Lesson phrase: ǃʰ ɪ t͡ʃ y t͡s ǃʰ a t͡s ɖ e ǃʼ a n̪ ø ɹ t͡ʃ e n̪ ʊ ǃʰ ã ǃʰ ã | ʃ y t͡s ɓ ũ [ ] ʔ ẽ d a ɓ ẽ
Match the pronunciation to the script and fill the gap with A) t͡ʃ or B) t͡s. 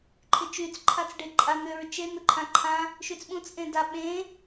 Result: B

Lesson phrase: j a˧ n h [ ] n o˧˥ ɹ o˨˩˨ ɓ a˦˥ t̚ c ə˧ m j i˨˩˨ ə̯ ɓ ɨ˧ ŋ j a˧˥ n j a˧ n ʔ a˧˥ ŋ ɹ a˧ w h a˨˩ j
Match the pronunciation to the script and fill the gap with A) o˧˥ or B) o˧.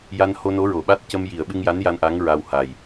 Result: B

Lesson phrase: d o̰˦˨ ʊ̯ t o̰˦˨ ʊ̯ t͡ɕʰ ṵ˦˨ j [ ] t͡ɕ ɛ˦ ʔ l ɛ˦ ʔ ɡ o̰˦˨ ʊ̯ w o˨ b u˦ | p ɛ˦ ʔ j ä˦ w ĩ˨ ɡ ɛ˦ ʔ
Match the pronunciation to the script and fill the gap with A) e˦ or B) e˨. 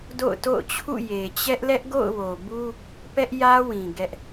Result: B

